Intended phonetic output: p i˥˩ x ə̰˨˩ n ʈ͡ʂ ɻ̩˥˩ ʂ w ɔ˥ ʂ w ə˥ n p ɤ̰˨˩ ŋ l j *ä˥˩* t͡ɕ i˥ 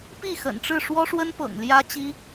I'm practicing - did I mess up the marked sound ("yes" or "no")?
yes